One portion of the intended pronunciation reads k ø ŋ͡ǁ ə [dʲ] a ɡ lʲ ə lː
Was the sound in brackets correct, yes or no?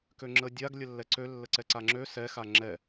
yes